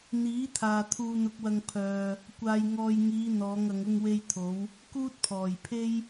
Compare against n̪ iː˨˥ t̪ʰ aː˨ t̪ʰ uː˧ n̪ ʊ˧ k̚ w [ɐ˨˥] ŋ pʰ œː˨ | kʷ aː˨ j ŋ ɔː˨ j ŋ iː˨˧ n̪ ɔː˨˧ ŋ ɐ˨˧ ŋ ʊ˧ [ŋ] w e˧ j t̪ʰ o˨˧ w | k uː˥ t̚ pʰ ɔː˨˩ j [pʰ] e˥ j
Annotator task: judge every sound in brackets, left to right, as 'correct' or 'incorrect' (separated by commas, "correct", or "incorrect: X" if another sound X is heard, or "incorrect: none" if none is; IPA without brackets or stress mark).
incorrect: ɐ˧, correct, correct